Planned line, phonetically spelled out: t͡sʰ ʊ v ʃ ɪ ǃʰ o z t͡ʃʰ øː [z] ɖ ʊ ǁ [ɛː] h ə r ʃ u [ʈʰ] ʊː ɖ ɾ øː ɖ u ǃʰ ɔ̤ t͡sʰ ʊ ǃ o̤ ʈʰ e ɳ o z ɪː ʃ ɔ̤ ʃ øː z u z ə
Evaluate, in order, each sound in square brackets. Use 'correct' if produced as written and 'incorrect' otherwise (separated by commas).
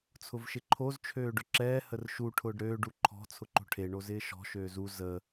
incorrect, correct, correct